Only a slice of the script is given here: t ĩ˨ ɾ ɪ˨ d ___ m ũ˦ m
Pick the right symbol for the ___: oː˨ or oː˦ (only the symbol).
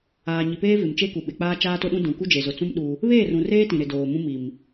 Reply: oː˨